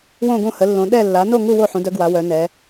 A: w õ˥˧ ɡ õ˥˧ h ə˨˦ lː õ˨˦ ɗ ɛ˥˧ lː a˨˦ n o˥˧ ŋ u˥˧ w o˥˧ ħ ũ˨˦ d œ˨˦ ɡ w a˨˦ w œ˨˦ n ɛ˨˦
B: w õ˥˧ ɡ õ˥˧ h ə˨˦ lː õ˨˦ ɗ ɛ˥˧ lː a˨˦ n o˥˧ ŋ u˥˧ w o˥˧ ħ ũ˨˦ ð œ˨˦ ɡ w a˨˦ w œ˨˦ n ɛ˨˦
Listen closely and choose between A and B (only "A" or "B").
A